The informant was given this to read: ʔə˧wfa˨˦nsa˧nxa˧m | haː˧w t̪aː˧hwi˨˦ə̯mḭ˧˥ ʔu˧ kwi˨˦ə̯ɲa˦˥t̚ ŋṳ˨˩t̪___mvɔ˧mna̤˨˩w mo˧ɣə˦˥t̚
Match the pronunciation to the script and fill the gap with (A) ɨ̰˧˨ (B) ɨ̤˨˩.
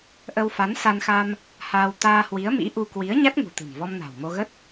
B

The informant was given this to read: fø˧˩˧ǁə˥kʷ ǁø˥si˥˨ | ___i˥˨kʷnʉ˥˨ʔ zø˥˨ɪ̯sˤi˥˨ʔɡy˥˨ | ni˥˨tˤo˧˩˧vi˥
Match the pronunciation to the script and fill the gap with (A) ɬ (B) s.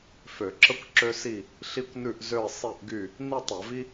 A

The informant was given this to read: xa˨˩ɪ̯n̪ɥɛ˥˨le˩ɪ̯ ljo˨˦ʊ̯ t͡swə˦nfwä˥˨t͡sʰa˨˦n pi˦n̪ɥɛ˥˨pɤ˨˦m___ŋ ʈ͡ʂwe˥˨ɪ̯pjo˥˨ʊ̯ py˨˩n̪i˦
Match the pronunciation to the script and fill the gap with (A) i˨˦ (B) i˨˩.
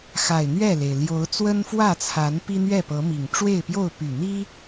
B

